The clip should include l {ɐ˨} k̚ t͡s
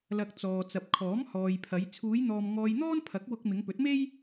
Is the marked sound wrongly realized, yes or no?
no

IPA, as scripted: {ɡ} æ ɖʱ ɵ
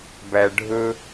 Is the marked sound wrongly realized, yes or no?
yes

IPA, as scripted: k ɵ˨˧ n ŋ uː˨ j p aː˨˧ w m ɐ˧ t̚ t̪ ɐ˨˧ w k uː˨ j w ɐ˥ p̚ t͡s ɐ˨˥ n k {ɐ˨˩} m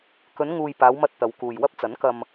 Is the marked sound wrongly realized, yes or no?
yes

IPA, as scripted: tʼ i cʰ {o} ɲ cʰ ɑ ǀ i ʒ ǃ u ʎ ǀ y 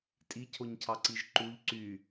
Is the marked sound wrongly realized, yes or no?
no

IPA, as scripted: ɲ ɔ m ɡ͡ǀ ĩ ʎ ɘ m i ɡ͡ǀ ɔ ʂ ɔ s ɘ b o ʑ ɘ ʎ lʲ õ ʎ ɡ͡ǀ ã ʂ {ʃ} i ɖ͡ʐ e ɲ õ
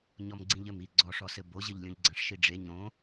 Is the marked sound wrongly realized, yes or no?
no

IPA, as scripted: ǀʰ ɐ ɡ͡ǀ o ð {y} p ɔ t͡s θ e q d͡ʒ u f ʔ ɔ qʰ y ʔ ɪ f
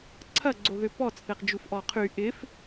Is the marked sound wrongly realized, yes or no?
yes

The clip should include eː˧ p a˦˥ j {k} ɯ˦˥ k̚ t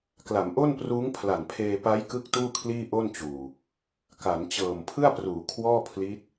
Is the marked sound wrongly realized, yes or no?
no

